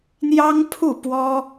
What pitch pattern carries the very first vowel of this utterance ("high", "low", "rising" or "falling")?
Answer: high